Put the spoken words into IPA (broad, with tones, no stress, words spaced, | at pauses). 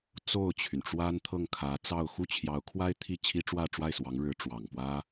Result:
t͡so˥˩ʊ̯t͡ɕʰy˩nʈ͡ʂwa˥n t̪ʰɤ˥˩ŋkʰä˧˥t͡sɑ˥˧ʊ̯ xu˥˩t͡ɕʰjɑ˧˥ʊ̯kʰwa˥ɪ̯ t̪ʰi˥˩t͡ɕʰi˥ʈ͡ʂwä˥˧ ʈ͡ʂwa˥˩ɪ̯swɑ˧˥ŋ ɻɻ̩˧˥ ʈ͡ʂwɑ˨˩ŋpwä˥